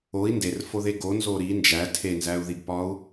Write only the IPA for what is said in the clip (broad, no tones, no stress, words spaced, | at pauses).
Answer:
oi̯ nderfoðe ɡonzo ɾi nd͡ʒæ tʰenzæu̯ðiɡpɒu̯